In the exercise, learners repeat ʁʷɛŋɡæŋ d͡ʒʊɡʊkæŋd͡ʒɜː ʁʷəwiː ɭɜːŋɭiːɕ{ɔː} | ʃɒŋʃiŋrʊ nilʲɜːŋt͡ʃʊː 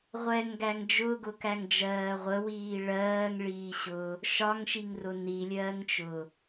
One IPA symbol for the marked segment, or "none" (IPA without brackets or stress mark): ʊː